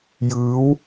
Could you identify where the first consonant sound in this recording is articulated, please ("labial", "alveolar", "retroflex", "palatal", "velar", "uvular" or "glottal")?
palatal